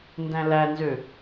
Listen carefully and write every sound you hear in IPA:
ndæ̃lænzø

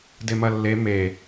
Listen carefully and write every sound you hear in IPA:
demɐlːe me

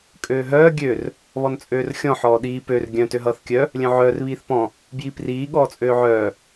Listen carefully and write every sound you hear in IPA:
kʼøːɦœː ɡʲør | βɔnt͡sʼøːrxʲɔ̃ ħɔːɗiː pør ɡʲœ̃ tøɦʌːθkʲœ | lʲœ̃ʕœːr βiːθpɔ̃ | bjipriː ɠɔːt͡sʼøːʕœː

